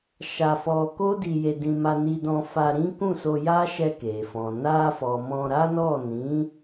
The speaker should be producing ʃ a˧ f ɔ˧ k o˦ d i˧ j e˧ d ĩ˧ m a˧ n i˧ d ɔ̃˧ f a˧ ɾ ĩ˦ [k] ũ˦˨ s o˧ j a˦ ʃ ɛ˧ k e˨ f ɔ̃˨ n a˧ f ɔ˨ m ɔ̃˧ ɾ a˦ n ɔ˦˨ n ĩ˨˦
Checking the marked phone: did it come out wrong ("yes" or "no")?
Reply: no